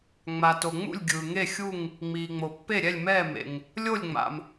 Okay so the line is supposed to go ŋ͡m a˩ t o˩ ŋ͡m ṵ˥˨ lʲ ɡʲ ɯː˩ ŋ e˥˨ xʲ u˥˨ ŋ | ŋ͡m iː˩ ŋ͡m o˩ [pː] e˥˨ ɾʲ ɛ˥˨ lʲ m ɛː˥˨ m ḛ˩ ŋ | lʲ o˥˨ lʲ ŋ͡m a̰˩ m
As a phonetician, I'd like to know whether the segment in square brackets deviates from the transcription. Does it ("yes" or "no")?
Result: no